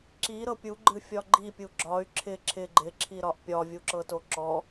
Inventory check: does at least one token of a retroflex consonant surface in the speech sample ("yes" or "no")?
no